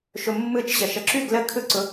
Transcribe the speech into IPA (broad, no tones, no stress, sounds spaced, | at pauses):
ʃ ʊ mː ɯ t͡ʃ ɕ ə ʃ ə ǁ ʉ ɡ l ə kʰ ɯ ǀ ʊ